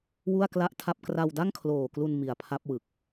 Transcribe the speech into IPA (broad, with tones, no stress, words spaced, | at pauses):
wu˥˩a̯kla˥˩ʔtʰa˥˩p̚ kra˧wda˥˩ŋkʰloː˨˩klu˧n mi˨˩a̯pʰa˦˥p̚ wɯ˨˩k̚